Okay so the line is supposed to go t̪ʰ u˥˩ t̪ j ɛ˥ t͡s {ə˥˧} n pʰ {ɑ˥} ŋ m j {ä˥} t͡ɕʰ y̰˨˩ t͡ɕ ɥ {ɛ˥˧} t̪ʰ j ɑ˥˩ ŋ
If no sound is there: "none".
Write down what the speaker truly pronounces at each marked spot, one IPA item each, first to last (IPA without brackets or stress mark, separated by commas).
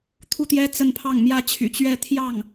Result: ə˥˧, ɑ˥˩, ä˥, ɛ˥˧